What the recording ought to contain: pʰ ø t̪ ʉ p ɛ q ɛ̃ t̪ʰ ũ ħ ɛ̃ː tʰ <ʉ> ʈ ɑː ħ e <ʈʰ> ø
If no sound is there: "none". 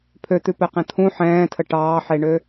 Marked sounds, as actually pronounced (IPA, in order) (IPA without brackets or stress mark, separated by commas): ə, ɳ